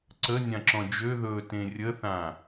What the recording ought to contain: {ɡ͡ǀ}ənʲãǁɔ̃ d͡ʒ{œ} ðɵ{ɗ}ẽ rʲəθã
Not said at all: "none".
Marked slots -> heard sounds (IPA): ǀ, ø, t

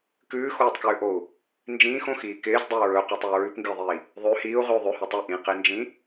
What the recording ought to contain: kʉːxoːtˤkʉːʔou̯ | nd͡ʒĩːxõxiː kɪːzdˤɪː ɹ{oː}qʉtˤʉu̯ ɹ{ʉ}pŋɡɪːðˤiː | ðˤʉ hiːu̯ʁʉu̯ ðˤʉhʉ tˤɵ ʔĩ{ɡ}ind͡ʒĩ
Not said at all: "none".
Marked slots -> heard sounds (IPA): ɵː, ʉ, q

